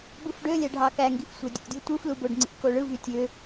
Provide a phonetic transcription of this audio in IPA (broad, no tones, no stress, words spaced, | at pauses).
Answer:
bɯfɖølʲæ ɖʱɑkæŋɡif sʷædʲṵdʲu tʷɯflu boɖŋ͡ǀḭko ɭɯvy tʲø